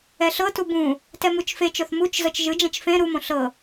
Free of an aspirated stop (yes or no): yes